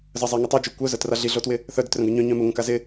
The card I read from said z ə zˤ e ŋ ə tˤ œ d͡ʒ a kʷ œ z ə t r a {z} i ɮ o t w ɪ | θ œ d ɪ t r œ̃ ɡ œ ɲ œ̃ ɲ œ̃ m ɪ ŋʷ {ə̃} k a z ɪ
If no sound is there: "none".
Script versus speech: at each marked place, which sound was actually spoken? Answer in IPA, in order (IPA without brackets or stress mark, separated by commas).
ɮ, ə̃